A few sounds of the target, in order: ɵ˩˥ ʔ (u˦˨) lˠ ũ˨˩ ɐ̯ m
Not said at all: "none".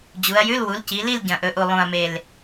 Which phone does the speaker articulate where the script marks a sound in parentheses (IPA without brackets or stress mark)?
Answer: u˨˩